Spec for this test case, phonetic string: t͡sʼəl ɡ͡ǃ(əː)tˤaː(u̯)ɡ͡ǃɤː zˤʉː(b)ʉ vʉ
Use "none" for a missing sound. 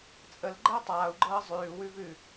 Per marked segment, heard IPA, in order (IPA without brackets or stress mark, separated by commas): əː, u̯, w